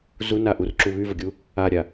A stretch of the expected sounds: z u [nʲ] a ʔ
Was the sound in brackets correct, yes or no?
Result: no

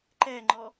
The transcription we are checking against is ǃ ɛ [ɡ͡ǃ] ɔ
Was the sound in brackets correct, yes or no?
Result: no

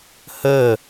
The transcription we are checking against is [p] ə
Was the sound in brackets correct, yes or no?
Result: no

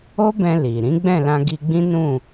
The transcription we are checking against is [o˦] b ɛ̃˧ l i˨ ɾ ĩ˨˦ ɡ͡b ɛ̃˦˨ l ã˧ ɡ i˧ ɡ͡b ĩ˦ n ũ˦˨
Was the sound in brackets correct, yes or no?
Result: yes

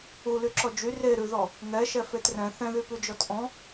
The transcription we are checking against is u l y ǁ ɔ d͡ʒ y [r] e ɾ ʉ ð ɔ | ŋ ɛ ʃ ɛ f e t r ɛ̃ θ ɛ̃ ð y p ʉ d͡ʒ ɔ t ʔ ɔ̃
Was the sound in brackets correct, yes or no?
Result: yes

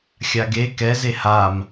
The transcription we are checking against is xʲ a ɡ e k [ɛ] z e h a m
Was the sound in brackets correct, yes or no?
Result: yes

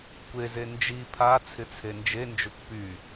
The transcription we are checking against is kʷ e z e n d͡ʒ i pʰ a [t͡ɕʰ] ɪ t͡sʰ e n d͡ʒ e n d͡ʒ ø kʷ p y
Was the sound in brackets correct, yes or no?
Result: no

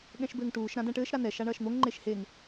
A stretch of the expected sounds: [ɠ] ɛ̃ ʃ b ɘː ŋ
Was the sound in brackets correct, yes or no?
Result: yes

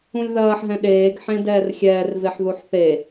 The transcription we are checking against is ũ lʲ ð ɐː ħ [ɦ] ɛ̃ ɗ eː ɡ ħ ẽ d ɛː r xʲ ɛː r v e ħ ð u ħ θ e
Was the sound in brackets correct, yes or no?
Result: yes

